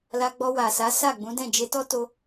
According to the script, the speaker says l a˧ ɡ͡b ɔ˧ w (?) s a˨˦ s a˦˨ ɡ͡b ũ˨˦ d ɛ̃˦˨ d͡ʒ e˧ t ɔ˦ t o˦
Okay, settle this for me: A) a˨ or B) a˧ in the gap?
A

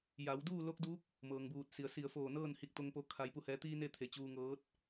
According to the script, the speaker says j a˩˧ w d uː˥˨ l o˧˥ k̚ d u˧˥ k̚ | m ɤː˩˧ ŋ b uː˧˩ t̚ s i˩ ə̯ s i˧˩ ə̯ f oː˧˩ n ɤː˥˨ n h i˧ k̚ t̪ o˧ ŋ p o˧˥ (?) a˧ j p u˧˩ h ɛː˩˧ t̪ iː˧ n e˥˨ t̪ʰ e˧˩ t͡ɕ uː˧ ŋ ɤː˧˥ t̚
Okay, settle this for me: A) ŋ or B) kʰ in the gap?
B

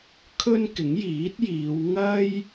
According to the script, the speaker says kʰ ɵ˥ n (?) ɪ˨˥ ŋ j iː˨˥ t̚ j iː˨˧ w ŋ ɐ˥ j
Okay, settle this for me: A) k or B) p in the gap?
A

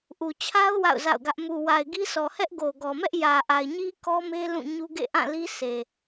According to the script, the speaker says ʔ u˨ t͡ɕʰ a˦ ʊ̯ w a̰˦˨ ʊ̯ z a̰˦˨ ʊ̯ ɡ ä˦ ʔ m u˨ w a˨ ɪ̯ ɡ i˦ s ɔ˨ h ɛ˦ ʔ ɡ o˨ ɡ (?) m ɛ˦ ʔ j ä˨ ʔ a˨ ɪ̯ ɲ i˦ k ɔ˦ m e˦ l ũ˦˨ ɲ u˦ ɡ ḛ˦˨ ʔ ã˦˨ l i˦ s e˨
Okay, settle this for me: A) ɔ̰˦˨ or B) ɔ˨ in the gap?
B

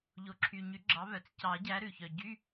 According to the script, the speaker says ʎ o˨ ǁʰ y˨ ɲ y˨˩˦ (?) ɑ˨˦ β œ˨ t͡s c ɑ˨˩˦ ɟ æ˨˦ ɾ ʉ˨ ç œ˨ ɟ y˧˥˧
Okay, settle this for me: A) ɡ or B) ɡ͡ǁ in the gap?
B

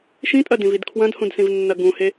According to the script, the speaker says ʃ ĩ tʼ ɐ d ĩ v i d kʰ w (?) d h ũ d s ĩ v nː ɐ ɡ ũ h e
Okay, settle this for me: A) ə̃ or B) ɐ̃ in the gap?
B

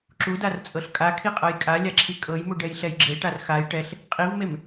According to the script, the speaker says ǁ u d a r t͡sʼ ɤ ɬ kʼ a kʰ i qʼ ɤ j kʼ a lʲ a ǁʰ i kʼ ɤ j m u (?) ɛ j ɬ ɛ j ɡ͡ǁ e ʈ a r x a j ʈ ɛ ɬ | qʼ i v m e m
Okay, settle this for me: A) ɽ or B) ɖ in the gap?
B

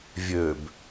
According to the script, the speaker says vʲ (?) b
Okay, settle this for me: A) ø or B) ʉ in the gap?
A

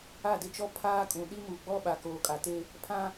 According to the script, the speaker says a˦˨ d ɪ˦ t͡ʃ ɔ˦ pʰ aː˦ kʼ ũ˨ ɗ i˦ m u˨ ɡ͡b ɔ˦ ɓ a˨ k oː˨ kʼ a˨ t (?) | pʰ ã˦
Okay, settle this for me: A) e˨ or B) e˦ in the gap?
B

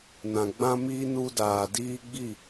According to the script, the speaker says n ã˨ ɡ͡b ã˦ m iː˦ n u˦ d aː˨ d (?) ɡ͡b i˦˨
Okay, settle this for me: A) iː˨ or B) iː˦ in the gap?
B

